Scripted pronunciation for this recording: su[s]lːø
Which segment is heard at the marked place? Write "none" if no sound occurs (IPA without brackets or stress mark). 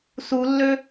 none